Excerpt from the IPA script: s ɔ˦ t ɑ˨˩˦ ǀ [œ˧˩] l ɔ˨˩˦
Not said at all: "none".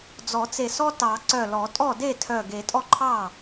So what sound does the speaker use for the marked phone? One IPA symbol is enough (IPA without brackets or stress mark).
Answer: œ˧˩